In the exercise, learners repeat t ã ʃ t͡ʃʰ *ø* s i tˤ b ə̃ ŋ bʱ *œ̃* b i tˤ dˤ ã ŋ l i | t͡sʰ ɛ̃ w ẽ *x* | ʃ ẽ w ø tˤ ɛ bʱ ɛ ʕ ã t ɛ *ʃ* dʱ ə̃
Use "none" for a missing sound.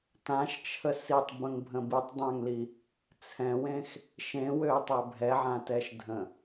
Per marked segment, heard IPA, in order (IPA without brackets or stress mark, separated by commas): ə, ə̃, x, ʃ